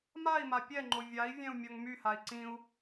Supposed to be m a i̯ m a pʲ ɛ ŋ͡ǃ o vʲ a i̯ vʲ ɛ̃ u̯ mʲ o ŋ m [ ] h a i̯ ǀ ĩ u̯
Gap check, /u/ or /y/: y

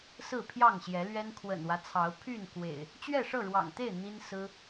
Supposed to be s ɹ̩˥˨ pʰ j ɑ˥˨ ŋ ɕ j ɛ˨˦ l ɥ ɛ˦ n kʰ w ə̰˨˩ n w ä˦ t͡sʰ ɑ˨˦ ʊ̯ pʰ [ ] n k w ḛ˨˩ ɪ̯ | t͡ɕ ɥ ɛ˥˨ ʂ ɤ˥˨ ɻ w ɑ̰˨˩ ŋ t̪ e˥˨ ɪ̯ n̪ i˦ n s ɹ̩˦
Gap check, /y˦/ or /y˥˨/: y˥˨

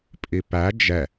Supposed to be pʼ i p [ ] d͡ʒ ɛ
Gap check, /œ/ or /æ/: æ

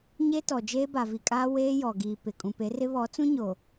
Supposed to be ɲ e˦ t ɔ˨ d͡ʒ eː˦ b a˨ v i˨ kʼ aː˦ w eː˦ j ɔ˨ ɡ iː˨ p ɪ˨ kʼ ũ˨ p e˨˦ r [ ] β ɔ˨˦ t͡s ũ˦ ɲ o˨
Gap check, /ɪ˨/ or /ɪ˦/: ɪ˦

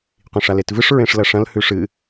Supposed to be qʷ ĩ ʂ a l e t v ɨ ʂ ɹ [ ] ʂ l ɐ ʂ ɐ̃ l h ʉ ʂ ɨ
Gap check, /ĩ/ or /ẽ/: ẽ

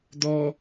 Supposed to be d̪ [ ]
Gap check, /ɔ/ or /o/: ɔ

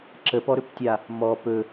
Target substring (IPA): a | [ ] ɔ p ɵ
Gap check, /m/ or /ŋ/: m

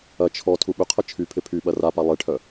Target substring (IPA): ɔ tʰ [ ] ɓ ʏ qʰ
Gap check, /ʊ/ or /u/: u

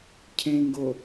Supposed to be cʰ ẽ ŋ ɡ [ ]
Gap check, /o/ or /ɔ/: o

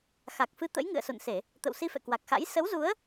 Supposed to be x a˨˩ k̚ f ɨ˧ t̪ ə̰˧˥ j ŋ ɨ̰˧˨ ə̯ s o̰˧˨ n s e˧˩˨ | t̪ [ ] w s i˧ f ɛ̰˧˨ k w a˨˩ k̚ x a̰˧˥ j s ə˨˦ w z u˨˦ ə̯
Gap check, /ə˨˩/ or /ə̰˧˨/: ə̰˧˨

